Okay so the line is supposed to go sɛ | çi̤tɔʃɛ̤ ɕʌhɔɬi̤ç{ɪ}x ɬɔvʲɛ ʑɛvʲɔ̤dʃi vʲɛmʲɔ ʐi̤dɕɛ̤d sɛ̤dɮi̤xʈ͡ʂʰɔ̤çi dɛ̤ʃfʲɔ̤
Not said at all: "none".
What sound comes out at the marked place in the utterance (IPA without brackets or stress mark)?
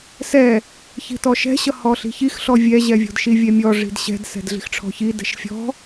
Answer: i